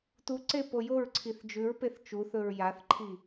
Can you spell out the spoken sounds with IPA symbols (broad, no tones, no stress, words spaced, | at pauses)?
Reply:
tuǀe pojoɹǀʰiθ d͡ʒʉɹpeθ t͡ʃuθɵɹ jaθǃʰi